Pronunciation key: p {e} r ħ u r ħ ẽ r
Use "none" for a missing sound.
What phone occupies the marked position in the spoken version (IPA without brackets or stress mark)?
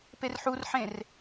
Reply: e